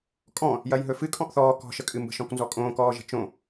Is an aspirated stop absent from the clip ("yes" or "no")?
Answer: yes